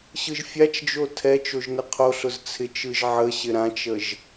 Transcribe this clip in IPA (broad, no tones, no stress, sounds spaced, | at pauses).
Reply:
ɕ ɯ ʒ fʲ a t͡ʃ d͡ʒ o tʰ ɛ t͡ʃ o ʒ n ɪ qʰ o ɬ ʊ z t͡sʰ ɪ t͡ʃ ɯ ʒ ʕ ə ɕ ɪ ɾ ã t͡ʃ ə ʒ